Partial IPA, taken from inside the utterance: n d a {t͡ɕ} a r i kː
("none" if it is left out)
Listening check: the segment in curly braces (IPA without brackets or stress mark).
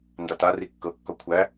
t